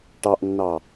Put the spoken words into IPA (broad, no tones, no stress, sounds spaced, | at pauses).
ʈ ɑ ʔ nː ɑ